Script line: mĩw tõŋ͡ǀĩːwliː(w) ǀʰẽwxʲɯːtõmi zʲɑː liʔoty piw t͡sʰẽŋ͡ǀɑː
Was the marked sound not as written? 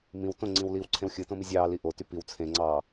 no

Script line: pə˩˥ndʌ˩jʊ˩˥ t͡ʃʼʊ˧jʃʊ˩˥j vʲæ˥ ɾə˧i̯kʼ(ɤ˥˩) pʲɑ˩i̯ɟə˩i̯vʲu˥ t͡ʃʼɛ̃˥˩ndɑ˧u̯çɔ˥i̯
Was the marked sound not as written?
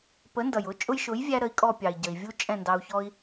yes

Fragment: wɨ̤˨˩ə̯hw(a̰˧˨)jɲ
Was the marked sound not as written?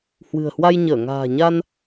yes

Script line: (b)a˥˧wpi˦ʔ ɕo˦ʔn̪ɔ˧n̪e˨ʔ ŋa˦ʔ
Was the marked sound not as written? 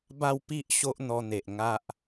no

